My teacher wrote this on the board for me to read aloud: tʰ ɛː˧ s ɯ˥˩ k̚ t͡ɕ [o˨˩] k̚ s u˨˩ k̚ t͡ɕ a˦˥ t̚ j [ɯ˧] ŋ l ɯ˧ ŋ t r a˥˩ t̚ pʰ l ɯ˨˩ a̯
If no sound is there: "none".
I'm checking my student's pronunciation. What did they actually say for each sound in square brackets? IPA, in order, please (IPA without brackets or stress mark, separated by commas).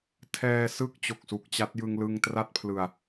o˨˩, ɯ˧